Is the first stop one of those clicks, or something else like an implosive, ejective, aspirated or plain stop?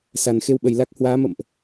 implosive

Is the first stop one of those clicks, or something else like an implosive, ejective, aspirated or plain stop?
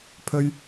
aspirated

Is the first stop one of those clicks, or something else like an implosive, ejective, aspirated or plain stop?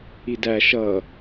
plain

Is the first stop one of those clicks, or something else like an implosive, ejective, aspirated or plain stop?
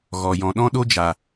implosive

